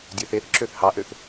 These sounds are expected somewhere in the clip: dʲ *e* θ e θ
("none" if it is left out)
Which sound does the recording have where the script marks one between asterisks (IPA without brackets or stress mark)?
ø